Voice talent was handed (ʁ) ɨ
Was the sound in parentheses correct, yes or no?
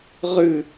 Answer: yes